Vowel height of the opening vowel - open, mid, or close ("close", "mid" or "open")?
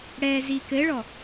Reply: mid